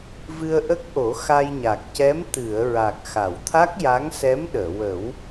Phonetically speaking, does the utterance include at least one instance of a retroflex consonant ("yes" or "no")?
no